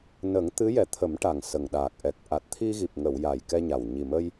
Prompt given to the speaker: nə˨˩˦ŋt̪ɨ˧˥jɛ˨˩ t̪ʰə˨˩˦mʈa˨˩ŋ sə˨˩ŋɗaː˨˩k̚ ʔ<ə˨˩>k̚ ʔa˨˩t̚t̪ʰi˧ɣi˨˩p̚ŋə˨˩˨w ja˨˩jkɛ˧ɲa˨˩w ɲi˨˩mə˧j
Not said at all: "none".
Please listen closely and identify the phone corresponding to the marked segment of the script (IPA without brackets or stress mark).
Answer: ɛ˨˩